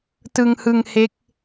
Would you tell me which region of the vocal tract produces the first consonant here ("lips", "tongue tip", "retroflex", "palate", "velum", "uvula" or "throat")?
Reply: tongue tip